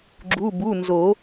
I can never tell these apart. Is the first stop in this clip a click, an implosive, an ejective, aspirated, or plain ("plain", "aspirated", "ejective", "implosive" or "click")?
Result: click